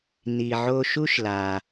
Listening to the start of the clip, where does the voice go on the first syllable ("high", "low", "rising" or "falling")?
low